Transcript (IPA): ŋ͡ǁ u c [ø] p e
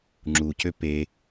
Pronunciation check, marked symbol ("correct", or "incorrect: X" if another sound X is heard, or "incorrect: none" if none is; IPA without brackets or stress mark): correct